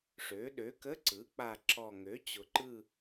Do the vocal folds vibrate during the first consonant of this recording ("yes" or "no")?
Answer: no